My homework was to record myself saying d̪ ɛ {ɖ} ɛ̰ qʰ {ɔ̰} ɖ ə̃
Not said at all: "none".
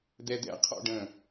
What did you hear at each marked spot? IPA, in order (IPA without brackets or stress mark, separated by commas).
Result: d̪, ɔ̰